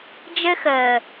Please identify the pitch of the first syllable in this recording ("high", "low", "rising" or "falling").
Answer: high